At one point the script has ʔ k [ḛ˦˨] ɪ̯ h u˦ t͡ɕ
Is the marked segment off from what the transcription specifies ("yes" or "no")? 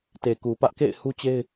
no